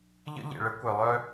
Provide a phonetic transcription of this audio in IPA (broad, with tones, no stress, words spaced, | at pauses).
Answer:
ʎə̰˦ʎḛ˨ɭə˦ kʷœ˨lˠœ˦